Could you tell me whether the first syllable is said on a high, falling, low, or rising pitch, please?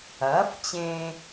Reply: rising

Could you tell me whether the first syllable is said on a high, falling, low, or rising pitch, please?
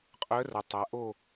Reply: rising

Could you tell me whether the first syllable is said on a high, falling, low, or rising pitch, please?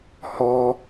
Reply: high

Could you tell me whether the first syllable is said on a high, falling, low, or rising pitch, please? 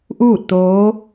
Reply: falling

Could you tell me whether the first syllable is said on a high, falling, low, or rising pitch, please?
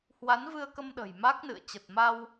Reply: rising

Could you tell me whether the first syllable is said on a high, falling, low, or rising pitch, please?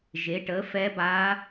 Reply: rising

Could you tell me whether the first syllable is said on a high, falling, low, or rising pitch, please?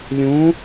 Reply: rising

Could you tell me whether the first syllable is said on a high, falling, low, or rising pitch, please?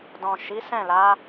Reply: low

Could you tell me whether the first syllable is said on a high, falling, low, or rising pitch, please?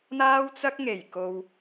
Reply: high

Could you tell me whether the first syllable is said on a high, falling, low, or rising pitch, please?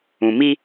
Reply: low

